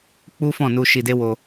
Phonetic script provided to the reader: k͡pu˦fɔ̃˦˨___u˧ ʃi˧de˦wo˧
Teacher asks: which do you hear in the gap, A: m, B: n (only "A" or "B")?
B